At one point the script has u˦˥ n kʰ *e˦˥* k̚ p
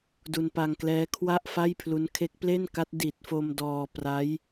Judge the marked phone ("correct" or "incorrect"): correct